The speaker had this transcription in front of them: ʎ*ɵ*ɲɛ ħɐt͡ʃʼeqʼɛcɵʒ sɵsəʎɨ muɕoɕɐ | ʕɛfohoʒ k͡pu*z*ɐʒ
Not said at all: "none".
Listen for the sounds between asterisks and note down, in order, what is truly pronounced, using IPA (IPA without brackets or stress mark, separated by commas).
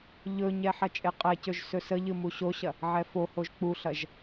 ɵ, ɬ